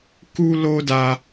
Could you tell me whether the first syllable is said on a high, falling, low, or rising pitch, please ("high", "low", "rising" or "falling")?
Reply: high